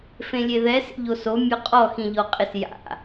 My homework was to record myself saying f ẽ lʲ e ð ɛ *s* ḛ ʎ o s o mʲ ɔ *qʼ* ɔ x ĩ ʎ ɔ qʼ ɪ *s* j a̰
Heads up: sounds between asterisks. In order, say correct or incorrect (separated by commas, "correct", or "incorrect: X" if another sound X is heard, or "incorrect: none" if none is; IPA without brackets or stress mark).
correct, correct, correct